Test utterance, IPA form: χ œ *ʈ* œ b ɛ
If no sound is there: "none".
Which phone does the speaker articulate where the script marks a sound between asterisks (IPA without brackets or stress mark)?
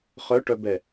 ʈ